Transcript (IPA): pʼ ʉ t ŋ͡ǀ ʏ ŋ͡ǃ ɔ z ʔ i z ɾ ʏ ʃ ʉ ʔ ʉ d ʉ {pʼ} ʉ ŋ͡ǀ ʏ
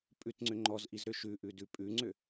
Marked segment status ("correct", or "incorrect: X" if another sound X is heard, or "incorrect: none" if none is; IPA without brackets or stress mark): correct